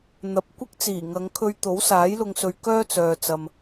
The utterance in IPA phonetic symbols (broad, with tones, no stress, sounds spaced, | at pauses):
n̪ ɐ˨˥ p̚ kʷ ɪ˥ k̚ t͡s iː˨˩ ŋ ɐ˨˧ ŋ kʰ ɵ˧ ɥ t̪ o˨˥ w s aː˨˥ j l ʊ˧ ŋ s ɵ˧ ɥ k œː˥ t͡s œː˨ t͡s ɐ˧ m